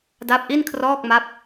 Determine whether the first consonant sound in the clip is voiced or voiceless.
voiced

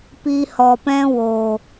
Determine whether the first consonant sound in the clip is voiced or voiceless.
voiceless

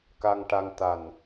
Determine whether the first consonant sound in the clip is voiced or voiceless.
voiceless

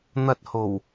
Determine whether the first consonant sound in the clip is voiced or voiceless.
voiced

